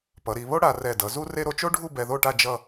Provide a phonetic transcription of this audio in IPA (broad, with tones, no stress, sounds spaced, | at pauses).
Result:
p ʌ˩˧ ɾ i˩˧ β o˥ ɽ a˧ r ɛ˧˩ d ʌ˩˧ z u˥ r e˥ ɾ o˧ t͡ʃ o˥ ɖʱ u˥˧ b ɛ˧ ð o˥˧ ʈ a˥˧ d͡ʒ ʌ˥˧